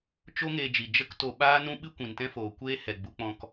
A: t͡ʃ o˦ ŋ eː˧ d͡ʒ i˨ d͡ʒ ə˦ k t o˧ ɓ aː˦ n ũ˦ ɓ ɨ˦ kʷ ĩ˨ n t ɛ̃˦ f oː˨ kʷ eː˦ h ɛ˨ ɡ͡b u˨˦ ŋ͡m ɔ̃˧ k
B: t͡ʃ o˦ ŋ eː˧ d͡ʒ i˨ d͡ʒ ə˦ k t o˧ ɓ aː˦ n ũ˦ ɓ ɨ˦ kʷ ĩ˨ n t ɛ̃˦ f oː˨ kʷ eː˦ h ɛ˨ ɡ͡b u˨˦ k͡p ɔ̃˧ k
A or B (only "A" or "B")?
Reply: B